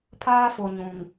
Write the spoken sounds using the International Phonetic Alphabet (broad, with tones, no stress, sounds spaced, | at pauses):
pʰ aː˦ f o˨ ɲ ũ˨ ŋ